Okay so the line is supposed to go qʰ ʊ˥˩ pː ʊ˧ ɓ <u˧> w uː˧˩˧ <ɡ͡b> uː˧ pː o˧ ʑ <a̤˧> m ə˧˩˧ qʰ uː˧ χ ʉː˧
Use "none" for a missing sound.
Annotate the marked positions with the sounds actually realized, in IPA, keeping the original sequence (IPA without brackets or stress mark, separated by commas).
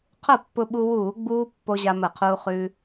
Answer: u˧, ɡ͡b, a˧